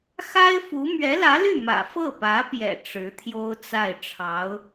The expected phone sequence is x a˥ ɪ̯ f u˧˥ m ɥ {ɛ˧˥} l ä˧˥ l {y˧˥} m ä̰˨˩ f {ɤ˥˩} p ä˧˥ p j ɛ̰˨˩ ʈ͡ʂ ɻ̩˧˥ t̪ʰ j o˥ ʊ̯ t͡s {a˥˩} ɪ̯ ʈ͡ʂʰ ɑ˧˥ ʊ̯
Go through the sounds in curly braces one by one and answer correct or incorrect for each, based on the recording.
correct, incorrect: y˥˩, correct, correct

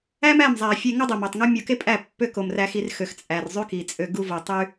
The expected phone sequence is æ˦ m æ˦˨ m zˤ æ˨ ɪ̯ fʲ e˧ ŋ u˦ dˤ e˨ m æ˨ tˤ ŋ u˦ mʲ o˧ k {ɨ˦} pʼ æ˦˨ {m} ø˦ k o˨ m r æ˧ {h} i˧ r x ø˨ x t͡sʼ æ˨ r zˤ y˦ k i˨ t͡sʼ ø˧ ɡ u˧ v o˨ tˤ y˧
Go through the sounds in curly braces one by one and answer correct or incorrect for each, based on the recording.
incorrect: e˦, incorrect: pː, incorrect: x

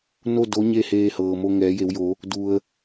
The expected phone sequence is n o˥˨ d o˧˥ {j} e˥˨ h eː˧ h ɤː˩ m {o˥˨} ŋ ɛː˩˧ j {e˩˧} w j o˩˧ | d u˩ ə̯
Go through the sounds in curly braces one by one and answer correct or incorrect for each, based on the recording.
incorrect: ɲ, incorrect: o˧, correct

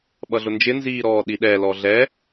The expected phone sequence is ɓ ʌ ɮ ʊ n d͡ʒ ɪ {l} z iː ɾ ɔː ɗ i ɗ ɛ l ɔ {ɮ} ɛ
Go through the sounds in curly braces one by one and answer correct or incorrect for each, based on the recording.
incorrect: n, correct

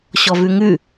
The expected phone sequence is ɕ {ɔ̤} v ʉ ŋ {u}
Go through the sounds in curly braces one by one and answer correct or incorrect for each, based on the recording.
incorrect: ɔ, incorrect: ʉ

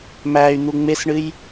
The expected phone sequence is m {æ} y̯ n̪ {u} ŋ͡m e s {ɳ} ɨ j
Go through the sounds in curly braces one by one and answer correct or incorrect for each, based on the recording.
correct, correct, correct

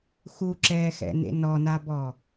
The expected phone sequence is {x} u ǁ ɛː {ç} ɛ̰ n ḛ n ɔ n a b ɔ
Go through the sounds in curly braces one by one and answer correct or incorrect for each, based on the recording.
correct, incorrect: x

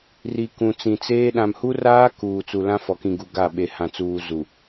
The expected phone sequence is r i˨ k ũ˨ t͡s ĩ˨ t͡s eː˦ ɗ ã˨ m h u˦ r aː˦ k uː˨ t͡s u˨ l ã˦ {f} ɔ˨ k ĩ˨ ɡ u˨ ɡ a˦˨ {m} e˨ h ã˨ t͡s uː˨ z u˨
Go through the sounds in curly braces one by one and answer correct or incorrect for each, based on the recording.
correct, incorrect: ɓ

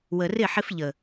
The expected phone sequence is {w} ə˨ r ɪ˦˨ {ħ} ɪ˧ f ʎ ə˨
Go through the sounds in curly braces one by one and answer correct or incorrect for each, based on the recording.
correct, correct

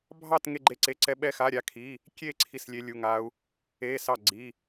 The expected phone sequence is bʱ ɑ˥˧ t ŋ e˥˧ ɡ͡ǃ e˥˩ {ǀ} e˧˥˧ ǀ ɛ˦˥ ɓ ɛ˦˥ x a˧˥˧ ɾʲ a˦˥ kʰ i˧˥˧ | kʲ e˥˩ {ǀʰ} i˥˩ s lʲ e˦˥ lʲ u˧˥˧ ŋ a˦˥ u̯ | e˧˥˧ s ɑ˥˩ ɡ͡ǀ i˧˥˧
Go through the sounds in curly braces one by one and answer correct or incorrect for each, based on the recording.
correct, correct

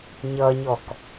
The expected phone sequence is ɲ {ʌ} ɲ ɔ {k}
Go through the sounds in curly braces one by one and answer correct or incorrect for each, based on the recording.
correct, correct

